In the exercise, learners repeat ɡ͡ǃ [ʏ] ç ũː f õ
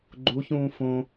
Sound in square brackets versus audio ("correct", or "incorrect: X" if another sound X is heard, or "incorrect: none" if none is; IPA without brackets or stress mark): incorrect: u